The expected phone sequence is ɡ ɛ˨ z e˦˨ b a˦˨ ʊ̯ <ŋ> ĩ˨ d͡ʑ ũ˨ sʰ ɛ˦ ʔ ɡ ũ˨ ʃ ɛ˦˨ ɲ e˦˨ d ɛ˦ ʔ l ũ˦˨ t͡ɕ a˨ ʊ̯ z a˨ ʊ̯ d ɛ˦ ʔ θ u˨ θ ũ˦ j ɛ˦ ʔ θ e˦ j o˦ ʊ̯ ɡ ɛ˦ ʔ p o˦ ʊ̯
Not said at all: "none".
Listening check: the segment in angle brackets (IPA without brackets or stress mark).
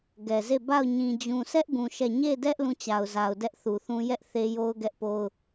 ɲ